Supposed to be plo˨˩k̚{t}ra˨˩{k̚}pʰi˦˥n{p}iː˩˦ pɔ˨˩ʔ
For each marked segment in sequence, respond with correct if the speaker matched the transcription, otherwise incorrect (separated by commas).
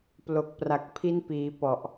incorrect, correct, correct